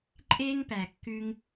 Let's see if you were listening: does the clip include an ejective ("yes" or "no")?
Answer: yes